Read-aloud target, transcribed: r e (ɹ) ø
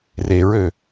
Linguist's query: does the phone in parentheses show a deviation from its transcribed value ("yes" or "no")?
no